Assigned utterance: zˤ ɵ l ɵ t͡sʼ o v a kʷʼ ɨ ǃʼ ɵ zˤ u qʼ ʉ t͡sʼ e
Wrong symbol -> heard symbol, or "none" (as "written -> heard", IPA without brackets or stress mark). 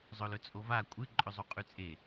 none